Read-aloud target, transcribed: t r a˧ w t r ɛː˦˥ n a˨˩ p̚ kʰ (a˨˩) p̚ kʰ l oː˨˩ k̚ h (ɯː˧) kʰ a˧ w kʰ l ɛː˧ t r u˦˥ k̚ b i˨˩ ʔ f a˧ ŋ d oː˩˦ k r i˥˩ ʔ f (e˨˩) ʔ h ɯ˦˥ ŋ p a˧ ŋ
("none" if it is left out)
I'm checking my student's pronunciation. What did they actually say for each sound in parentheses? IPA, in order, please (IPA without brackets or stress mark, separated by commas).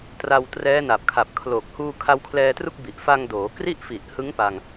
a˨˩, uː˧, i˨˩